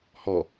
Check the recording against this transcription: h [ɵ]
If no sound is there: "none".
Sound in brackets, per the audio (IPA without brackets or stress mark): ɔ